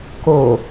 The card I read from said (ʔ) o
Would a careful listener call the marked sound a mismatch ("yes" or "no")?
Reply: yes